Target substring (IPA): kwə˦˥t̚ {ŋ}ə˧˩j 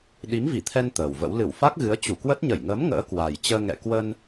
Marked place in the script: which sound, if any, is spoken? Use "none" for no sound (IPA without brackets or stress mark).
ɲ